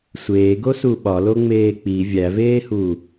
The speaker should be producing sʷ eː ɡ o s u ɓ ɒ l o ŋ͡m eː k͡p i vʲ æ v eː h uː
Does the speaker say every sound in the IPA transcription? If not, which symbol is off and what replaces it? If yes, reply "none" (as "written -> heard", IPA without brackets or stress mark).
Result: none